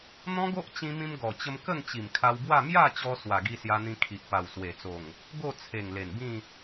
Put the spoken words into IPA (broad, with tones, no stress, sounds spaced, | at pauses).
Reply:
n̪ ɔ̃˦ ɡ o˦ ʔ t͡ɕ ĩ˧ m ĩ˧ m ɡ ɔ˨˩ t͡ɕ ə˧ m k ə˥˧ ŋ t͡ɕ i˨˩ m kʰ a˧ w b w a˥˧ m j a˥˧ t͡ɕ ɔ˧ s w a˨˩ ɡ i˧ s j a˧ n̪ ĩ˧ kʰ i˨ ʔ p a˨˩ w s w e˨˩ t͡s o˨˩ ŋ | ɡ o˥˧ t͡sʰ e˨˩ ŋ l e˨˩ n b ĩ˥˧